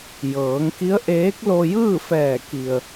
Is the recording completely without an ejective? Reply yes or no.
yes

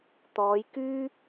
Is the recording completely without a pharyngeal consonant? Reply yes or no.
yes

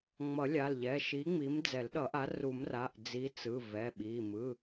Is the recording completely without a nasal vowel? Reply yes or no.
yes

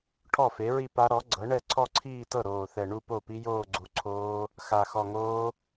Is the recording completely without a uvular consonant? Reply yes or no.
yes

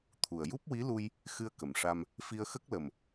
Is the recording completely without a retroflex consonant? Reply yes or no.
no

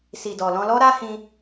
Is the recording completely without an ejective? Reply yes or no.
yes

